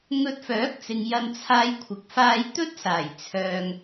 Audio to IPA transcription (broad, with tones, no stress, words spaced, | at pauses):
ŋɵ˧t̚fœː˨˥k̚t͡sɪ˨ŋ jɐ˧nt͡sʰaː˧jkʷʰɪ˨k̚ faː˧jt̪ɵ˥t̚saː˨˩j t͡sʰœː˧ŋ